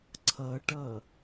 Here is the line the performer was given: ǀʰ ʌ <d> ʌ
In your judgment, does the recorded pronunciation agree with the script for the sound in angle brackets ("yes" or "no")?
no